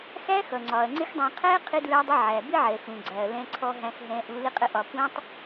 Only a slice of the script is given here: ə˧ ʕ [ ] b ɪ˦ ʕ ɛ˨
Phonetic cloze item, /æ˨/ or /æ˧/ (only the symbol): æ˨